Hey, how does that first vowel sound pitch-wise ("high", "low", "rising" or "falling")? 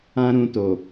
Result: high